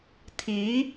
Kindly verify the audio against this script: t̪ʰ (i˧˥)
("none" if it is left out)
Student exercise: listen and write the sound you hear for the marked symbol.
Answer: i˧˥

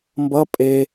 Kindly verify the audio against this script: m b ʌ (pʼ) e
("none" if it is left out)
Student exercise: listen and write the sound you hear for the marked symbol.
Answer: pʼ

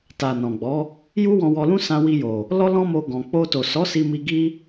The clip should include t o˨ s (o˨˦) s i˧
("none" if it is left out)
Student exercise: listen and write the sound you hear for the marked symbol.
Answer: ɔ˨˦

